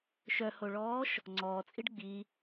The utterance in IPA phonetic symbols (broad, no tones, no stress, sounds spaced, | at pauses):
ʃ œ h o ɭ ɔː ʃ | ŋ͡ǀ ɔː t͡sʼ i ɖ ɡ͡b i